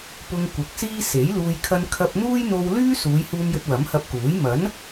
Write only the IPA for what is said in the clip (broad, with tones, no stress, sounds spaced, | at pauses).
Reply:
p ʊ˧ ŋ kʷ ɐ˨ k̚ s iː˥ s e˨˥ j l uː˧ j kʰ ɐ˧ n kʰ ɐ˧ p̚ n̪ uː˥ j n̪ o˧ w l yː˥ s uː˨˧ j h uː˧ m j ɵ˧ t̚ w ɐ˨˥ m h ɐ˧ p̚ k uː˨˥ j m ɐ˨˥ n